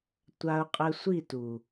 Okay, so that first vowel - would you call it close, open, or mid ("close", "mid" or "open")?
open